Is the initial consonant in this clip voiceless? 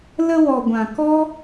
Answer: no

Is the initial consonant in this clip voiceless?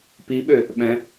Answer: yes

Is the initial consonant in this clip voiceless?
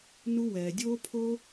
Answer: no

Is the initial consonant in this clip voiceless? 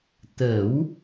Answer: yes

